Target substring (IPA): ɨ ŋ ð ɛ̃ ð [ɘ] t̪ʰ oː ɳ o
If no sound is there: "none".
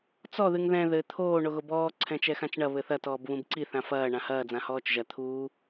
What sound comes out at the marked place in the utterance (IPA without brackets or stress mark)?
ɘ